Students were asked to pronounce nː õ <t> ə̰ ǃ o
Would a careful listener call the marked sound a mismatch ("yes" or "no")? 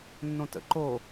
no